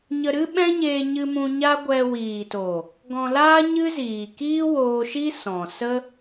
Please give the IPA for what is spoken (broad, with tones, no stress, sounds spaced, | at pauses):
ɲ ə˧ ɾ ɨ˦ ɓ ɛ̃˦ ɲ eː˧ ɲ ɨ˧ m ũ˧ ɲ a˦ ɡʷ ɛ˧ w iː˨ t o˨ | ɡ ɔ̃˧ l aː˦ ɲ ɨ˦ z iː˨ k iː˦ w oː˧ ʃ i˦ s ɔ̃˨ s ə˦